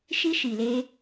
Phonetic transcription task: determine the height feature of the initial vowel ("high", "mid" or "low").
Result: high